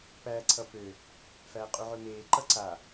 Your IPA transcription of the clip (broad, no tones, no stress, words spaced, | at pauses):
pæːǀʰʌpø | fæːqʼuʕømeː ǃʌǀa